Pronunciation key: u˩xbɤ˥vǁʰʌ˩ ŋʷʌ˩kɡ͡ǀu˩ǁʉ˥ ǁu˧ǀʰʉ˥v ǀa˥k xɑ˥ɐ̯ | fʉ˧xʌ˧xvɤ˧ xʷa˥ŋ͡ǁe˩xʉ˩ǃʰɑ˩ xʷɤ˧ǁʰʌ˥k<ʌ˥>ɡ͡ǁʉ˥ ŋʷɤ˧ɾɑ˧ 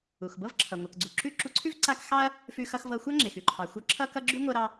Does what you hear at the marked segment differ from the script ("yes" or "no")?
no